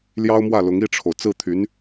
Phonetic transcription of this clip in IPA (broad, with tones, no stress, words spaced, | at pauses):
ljɑ˥ʊ̯mwä˥˩lʊ˧˥ŋ i˥˩ʈ͡ʂʰo˩ʊ̯ t͡sɹ̩˥˩t̪ʰy˧˥n